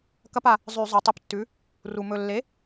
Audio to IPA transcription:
kɐ˦pa˩ | zˤʉ˧˩˧zˤo˩˧tˤɨ˧˩ptːʉ˩˥ | ru˩mɵ˧˩ lːe˩˥

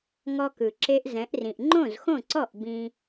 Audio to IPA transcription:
ŋɔ˧kɯ˩ǁe˧ʔ zɛ̃˩˥ʔrĩ˩ʔ ŋ͡ǃõ˥˩zxõ˥˩ǀɔ˥˩ʔ bĩ˧

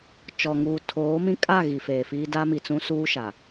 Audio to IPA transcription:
t͡ʃɔ˨ŋuː˨ tʰoː˨˦mĩ˦ kʼa˦˨ ɣi˨feː˨fiː˦ da˦mi˨t͡sũ˦ suː˦ ʃa˨

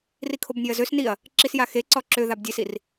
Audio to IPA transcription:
rikʰobnʲøɐ̯zøs niɐ̯ | ǁisjaxe ǀɔǁøðab dʲesir

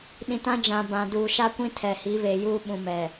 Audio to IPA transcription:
ɗĩ˨tã˦d͡ʒã˨ bã˨duː˨ʃa˦kʷĩ˦ tʰɛ˨hi˨˦βeː˨ juː˦ ɓũ˨mɛ˨

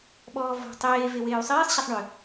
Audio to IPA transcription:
ɓɔːvɔ̤ tˤeː veweːu̯sˤɛːsˤ ɕɛsˤɳʏ

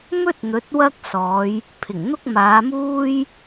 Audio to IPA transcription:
mɵ˥t̚ n̪ɵ˨˥t̚wɐ˥k̚sɔː˨˧j | pʰɪ˨˩ŋn̪ʊ˥k̚maː˨˧muː˥j

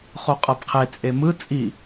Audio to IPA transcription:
χoqʼɤbqʰe t͡sʼemɯ t͡sʼi

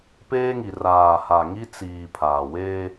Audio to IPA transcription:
peː˦ŋi˨ raː˨ha˨ ŋi˦t͡siː˨ pʰaː˨ weː˦

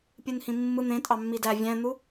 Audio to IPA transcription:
pʲɯnhĩmːɯ n̪ẽtʼɑ mːidæ vʲæ̃n̪u

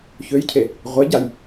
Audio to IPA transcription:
çøjcʰe | ʁʷeɟaj

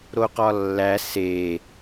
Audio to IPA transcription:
ɾoqɒlːæ se

